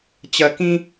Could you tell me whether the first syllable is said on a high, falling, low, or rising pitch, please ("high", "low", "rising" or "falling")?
low